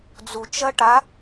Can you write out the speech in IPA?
d͡zut͡ʃɐ ʈa

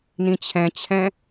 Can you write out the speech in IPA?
nĩt͡ɕʰɛ̃t͡ɕʰɛ̃

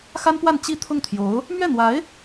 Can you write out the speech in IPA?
xa˥npwa˥˧n t͡ɕi˥˧ t̪ʰʊ˥˩ŋt̪ʰjo˧˥ʊ̯ | mɥɛ˥˩n̪wa˧˥ɪ̯

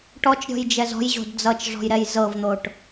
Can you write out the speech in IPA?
ʈɔt͡ʃɾʲɔ̤jd͡ʒɛz ɔ̤jʑo̤d d͡zʌt͡ʃʐɔ̤jɾɛj zɤvn̪oʈ

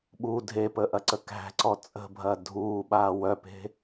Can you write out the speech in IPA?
ɓu dʱepəːʔɐǀə kæ̤ǀɔ t͡sʼə̤bʱɐ dʱuːɓaː wœpe̤

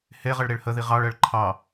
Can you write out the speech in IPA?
heʁəɭ ɾeɭhəði ʁɑɭɜɭ ǃʰɑ

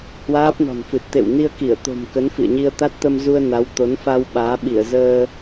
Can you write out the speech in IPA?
hwaː˦˥p̚nɔ̤˨˩nfɨ˨˩t̚ t̪ḛ˧˨wni˧ə̯ki˧˩ə̯ t̪o̤˨˩mkə˨˦n fḭ˧˨ə̯ɲi˧ə̯ t̪a˦˥t̚t̪ə˧mzu˧ə̯ na˨˦wt̪o˨˦nfa˧w ɓaː˨˦ɓi˧˩ə̯ zəː˧

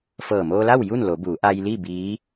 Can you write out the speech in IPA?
fɤː˧˩moː˧la˥˨w ju˥˨nlo˩˧ buː˩˧ʔa˧jli˥˨ biː˧˥

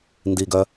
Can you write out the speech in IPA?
ndiɡœ

